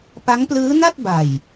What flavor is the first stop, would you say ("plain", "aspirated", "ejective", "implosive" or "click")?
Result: plain